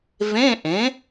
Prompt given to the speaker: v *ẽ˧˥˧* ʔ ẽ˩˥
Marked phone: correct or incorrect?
correct